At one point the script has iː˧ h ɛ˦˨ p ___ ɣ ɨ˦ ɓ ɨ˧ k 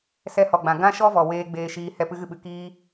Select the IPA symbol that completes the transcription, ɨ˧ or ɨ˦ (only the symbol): ɨ˦